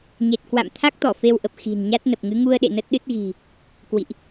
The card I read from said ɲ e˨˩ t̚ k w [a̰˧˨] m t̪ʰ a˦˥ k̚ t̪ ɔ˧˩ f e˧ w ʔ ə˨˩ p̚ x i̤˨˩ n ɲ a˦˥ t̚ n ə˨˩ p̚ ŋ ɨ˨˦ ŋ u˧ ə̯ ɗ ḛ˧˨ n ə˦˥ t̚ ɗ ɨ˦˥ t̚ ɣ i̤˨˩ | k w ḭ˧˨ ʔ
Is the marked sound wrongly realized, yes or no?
no